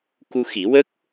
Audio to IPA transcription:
ku˧xi˨˩˦wə˦˥k̚

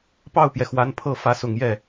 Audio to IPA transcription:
pɑ˥˩ʊ̯pjɛ˩xwa˧˥n pʰɤ˥˩ fä˧˥sʊ˨˩ŋjɛ˥˩

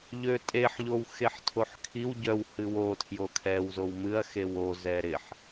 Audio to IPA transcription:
ʎøtʼeħ ʎowxeħtʰoħkʰiw ɟœw hɨwo tʰjokʰɛw zowmɨɐ̯ xewo zɛɾɪħ

